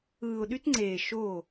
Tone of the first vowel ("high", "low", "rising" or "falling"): low